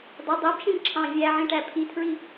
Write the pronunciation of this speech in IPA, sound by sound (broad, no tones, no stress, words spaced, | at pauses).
dˤɛ dˤæbʃĩn ǁʰɑ̃ vʲæʕĩʈæ pʰitʰɹi